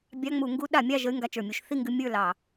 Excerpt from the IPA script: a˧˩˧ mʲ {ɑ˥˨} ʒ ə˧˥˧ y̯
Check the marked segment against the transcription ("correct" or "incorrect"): correct